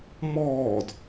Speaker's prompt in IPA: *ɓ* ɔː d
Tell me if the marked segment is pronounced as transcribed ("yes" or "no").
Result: no